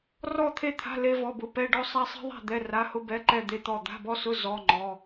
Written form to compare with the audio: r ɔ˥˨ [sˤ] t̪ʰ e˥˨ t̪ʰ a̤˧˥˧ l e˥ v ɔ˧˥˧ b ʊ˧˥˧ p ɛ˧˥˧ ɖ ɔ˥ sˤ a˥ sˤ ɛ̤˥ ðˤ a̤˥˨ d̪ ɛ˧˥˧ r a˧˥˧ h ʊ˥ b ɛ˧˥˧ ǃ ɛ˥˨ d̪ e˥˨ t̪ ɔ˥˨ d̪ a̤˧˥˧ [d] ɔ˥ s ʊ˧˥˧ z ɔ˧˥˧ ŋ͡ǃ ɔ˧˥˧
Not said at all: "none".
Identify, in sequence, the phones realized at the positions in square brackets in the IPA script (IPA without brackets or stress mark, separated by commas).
none, b